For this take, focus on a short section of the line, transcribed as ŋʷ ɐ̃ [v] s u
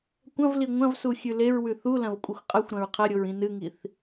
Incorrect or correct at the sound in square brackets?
correct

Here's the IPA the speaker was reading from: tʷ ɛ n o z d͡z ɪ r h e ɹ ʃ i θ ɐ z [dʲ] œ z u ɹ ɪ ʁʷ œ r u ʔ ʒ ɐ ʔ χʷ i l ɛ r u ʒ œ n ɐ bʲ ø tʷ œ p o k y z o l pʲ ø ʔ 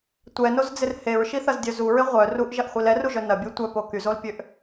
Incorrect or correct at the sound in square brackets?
correct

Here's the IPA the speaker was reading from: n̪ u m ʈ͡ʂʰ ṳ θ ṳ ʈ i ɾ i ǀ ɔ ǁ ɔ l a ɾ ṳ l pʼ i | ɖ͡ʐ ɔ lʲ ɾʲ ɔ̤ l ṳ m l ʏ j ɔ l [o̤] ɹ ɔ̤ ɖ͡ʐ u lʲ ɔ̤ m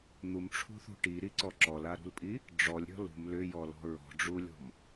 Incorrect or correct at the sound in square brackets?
incorrect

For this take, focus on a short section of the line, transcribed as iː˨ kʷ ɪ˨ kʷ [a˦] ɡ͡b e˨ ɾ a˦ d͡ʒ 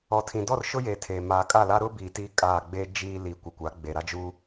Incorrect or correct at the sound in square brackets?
incorrect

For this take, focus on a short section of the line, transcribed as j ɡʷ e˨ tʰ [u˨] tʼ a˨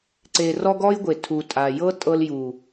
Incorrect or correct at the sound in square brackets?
correct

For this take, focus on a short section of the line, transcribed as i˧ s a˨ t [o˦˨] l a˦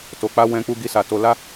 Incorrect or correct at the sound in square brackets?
incorrect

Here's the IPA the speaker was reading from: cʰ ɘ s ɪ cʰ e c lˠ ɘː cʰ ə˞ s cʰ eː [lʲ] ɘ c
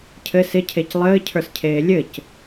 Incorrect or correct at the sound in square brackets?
correct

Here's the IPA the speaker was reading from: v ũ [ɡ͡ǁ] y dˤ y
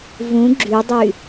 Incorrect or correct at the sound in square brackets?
correct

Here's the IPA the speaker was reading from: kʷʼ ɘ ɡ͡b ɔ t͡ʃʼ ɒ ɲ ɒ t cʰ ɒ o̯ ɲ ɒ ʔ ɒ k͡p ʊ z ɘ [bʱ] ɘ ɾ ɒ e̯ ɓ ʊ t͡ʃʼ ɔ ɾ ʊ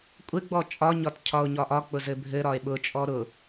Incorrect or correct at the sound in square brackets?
correct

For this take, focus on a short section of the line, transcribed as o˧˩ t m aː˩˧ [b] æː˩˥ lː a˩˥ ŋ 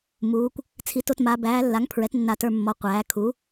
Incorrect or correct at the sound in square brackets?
correct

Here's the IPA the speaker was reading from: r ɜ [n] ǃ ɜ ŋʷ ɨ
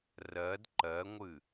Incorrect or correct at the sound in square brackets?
incorrect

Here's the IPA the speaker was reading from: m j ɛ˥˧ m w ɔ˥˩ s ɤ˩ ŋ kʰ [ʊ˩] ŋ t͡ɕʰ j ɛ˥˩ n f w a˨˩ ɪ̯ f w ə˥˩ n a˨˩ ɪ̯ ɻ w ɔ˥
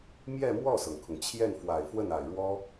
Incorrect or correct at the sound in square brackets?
correct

